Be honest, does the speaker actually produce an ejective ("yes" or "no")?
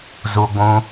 no